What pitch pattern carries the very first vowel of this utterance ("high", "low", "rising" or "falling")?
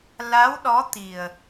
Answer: rising